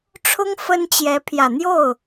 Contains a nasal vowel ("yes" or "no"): no